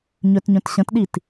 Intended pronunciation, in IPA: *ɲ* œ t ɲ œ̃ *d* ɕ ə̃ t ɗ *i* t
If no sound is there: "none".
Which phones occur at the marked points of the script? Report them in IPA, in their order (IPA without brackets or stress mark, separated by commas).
ɲ, t, i